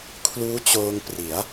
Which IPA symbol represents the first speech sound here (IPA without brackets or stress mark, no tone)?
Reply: kʰ